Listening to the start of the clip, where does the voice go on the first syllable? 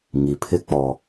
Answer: low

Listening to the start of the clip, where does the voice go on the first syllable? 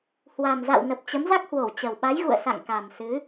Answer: low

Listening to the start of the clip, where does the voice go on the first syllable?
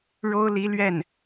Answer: high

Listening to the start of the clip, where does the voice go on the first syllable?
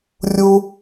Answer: high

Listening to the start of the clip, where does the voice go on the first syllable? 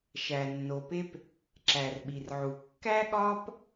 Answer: low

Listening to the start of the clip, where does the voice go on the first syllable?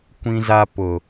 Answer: high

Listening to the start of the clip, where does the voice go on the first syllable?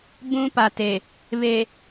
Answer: high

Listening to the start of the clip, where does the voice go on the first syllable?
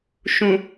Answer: low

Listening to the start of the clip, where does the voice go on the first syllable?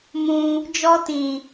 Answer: high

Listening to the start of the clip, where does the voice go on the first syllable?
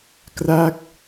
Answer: falling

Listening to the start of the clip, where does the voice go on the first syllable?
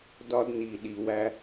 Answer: high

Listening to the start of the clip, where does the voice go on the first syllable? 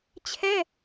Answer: high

